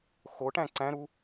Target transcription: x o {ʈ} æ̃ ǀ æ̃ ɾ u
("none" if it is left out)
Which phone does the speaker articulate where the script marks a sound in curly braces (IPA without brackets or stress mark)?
ʈ